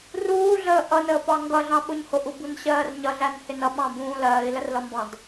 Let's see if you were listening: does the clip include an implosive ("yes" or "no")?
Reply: yes